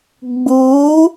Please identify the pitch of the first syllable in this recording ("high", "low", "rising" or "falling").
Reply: rising